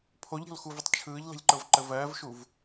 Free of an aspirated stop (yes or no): no